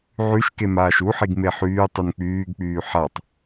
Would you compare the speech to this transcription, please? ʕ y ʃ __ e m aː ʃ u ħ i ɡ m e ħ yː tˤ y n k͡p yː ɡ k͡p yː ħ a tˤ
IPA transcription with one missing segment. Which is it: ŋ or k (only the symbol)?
k